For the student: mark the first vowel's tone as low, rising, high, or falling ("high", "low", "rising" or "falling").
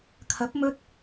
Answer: rising